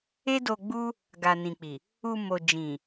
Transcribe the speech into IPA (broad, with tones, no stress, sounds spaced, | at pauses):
e˦ d o˧ ɡ͡b u˦ | ɡ a˨ n ĩ˨ k͡p i˨ | u˧ m o˨ d͡ʒ ĩ˨